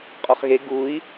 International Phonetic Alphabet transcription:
qʼɔχɣe ɡui̯

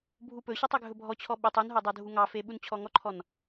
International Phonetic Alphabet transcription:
bʱupɵɕɔtˤ øɡʱɵbʱɔt͡ɕʰɔ ɓytˤ unɦo dˤodʱuŋɑfe ɓunt͡ɕʰɔŋɔǃʰɔn

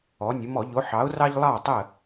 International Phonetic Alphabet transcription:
ɔ˩˧nʲə˩˧ mɔ˧˩˧ ʎo˨˥ħɑ˨˥ʊ̯rɑ˥ʎ lˠɑ˥˨tˤə˥˨

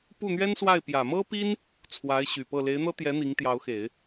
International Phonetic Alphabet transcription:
pu˥˩n̪ɥɛ˥nswa˥˩ɪ̯ pjä˨˩mɤ˥pi˥n | t͡sʰwa˧˥ɪ̯ɕy˨˩pɤ˥˩ le˧˥ɪ̯n̪ɤ˥t̪jɛ˧˥ n̪i˧˥ŋt̪jɑ˧˥ʊ̯xe˨˩˦ɪ̯

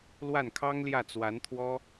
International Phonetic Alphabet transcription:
lwa˥˩nkʰɑ˥ŋljä˥˩ t͡swa˧˥nt̪ʰwɔ˥

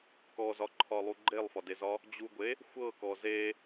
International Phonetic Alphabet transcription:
kɔzɒǃʰɒlˠu ɡ͡ǃelˠfɒdezɒ | d͡ʑuɡʷe | xʷɤkɔ ze

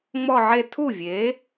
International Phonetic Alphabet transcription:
ŋ͡mɔ˥˧ʕe˥˧ tʰu˥˩vʲe˩˥

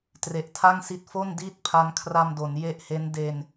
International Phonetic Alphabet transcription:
tre˨˩ʔtʰa˥˩ŋsi˦˥t̚ fo˥˩n diː˥˩t̚pʰa˧nkʰra˧mdo˩˦n je˦˥ʔhe˦˥n de˧n

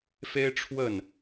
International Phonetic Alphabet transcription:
fe˥ɪ̯ʈ͡ʂʰwə˥˩n

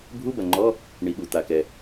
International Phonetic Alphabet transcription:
bʱu˧˥˧bɐ˩ŋ͡ǃɔ˧˥˧ | ɳi˩ɠu˩ t̪a˩kɛ˩

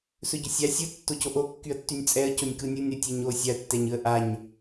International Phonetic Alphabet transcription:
sɵɟɵsʲa sʲɯ tːocoʔo kːyə̯tːynʲt͡sʼɛə̯ conʲkɯnʲɯnʲ ɾɯtʲɛɲo sʲaə̯ tːɛɲɯə̯ʔaɲ

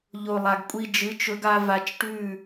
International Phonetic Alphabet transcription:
ʎo˨ lˠa˨ɡkʷʼi˧ d͡ʒɨ˨˦t͡ʃɵ˧ɡa˧ va˧t͡ʃʈʉ˦˨

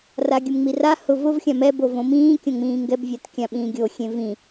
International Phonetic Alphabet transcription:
raɡʲʊmŋ͡mira hʊ vʊvxʲã mɛbo võmĩː kʲõŋ͡mĩːŋɡɛbvʲat kʲãɓĩːɡʲo xʲẽvĩ

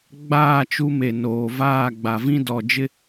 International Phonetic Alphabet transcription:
ɡ͡baː˦˨t͡ʃu˦me˨noː˨ vaː˦˨ɡ͡ba˨vĩ˦ dɔ˨d͡ʒɪ˦

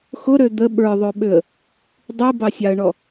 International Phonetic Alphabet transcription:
xʊɾø d̪ə ɓə˞ðˤøɓøə̯ | dˤibɑsʲɑə̯ɳɔ

